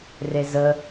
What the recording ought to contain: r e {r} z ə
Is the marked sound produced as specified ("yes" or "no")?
no